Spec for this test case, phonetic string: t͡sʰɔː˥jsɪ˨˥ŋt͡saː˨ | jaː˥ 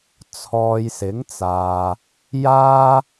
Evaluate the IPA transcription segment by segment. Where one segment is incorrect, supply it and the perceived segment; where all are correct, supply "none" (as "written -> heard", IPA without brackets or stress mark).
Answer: ɔː˥ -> ɔː˧